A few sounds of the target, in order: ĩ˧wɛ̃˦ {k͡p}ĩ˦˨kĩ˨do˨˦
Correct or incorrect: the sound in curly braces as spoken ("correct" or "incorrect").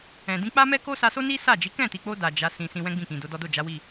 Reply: incorrect